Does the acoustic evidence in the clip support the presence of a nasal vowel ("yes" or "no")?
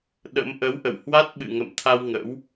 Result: no